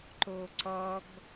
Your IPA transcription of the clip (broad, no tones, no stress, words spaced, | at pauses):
ǃoǀɔɡ